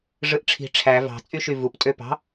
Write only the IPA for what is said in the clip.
ʐɯʔʈ͡ʂʰi̤ ʈ͡ʂʰæ vɑ̤ t͡sʼyʃyvup tʼøpɑ̤

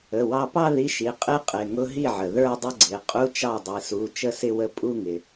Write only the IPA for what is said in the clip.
ə˩˧˩wɑ˧pɑ˥˧ ði˧˥˧ʃi˩˧˩ qʼɪ˥˧qʼɪ˩˧˩ ŋʊ˧˥˧ɦi˥˩ʕə˩ ðə˞˥˧dˤə˥˧ ɡ͡ǀɪ˩˧˩ qʼu˧˥˧t͡ʃɑ˥˩ dˤi˩su˩˧˩ t͡ʃə˥˧sɪ˥˧wə˥˩ pʼu˥˧ŋɪ˩

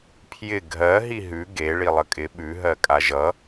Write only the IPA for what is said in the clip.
pʰjɪ ɡʱɜ ɦiɦʉ ɡe ɭilˠəkʼɪ ɓʉ ɦɜkʼaʒʌ

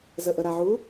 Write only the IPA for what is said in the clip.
zəʔəɾaʕu

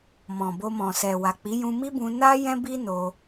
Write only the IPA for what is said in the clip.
mɔ̃˨bo˧mɔ̃˨sɛ˨ wa˨k͡pi˨˦ jũ˧mi˦ bũ˧na˦ jɛ̃˦bi˦ no˧

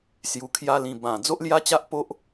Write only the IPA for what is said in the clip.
sju˧kʰja˦lĩ˧ bã˨˩ d͡zo˦ʔlja˦t͡ɕa˦ʔpo˦ʔ

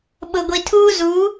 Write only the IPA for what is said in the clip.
ɓʊ˨ɡʷi˨tʰuː˦zu˨˦

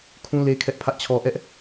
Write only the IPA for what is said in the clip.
kʰũ˦le˦ kʰɛ˦ʔpʰä˦ʔt͡ɕʰɔ˦ ʔɛ˦ʔ

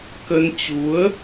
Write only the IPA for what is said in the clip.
kə˧n t͡ɕu˨˦ə̯

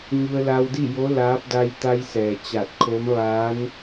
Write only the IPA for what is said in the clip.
ɲu˧ə̯la˧wdi˥˨jo˧˥ laː˧˥p̚ da˧jt̪a˧jsɛː˩ t͡ɕa˧˩t̚kʰo˧˥mʋaː˧˥n

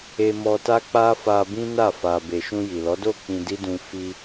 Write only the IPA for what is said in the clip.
e˧mɔ˧ta˦k͡pa˦ fa˧bĩ˦na˦˨ fa˨be˨ ʃũ˧ji˨lɔ˨˦ do˦˨ k͡pĩ˧di˦dũ˧ fi˧

